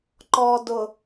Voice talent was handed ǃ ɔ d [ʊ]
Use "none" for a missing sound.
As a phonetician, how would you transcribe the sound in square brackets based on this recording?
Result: ʊ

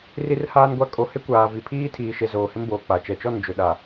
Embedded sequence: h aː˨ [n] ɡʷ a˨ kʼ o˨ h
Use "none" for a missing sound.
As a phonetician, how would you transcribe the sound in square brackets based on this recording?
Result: n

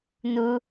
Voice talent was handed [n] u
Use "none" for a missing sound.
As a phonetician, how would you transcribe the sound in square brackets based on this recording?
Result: n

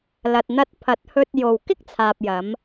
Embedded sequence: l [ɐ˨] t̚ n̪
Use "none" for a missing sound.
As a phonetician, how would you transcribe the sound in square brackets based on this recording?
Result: ɐ˨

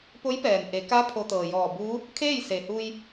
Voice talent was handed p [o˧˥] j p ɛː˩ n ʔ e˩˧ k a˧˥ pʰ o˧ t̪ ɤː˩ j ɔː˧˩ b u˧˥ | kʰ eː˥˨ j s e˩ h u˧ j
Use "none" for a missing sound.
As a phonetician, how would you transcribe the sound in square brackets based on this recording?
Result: o˧˥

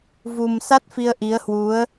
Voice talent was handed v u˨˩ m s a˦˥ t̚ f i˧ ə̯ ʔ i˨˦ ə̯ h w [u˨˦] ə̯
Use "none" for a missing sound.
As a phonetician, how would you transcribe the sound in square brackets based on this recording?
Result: u˨˦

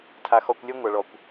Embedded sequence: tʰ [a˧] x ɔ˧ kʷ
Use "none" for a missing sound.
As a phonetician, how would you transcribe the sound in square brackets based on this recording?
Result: a˧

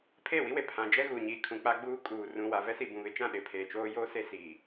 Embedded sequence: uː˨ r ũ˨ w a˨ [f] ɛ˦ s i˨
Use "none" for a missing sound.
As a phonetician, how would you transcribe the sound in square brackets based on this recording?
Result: v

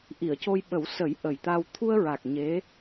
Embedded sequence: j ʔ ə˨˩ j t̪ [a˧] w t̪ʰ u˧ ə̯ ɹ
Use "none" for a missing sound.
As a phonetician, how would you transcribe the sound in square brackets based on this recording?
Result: a˧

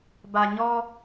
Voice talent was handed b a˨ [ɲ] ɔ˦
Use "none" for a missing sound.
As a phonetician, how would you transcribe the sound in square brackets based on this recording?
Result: ɲ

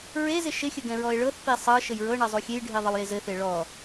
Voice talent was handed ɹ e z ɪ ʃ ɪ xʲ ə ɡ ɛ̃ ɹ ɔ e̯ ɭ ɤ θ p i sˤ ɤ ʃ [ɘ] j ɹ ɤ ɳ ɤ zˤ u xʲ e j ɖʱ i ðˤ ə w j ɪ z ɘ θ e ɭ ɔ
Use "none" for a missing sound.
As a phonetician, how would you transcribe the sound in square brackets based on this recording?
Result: ɘ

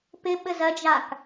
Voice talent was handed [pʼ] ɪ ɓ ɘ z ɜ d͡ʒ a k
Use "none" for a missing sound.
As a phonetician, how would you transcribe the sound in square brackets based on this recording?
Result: p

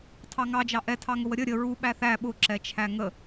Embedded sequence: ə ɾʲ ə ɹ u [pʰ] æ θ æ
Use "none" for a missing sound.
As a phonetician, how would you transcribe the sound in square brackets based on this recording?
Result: ɓ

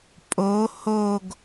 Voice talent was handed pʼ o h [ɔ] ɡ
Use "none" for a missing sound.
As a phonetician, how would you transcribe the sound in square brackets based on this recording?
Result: o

